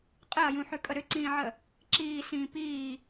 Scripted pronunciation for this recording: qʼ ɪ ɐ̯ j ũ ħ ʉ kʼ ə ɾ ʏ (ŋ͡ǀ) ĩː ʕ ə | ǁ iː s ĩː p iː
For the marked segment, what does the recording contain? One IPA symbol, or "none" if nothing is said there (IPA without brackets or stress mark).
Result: ǀ